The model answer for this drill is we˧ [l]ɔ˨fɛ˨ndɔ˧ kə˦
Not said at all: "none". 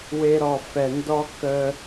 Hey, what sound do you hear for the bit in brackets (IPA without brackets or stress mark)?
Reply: ɾ